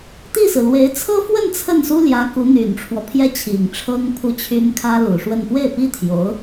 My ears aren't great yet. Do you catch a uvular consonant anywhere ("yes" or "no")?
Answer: no